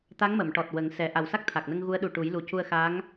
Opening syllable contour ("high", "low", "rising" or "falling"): rising